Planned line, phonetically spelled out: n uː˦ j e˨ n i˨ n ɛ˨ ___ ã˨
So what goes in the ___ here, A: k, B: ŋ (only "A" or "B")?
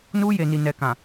A